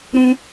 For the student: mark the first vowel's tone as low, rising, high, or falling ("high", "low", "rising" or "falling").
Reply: high